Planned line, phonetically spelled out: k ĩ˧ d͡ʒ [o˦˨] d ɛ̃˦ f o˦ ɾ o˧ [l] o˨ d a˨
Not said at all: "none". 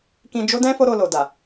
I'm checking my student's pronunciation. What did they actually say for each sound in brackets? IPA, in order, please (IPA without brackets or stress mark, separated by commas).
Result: o˦, l